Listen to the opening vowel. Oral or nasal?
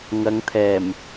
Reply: oral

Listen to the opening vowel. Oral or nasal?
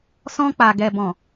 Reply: nasal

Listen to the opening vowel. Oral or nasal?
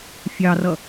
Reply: oral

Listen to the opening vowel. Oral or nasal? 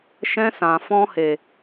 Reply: nasal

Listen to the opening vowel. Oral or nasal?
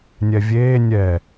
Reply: oral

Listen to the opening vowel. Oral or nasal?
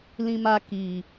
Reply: nasal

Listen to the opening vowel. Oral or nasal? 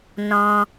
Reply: nasal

